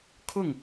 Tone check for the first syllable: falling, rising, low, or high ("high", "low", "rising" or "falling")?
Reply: falling